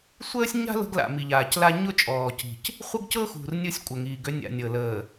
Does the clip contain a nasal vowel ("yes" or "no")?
no